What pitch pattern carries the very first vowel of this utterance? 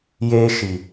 high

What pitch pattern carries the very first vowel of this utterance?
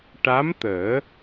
rising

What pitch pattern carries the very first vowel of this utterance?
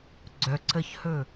low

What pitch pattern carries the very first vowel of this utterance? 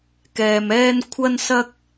low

